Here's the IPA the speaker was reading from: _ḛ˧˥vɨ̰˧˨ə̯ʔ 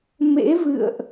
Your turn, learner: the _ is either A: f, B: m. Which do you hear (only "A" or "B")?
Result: B